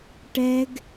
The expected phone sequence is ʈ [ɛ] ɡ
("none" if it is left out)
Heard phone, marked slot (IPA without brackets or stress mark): ɛ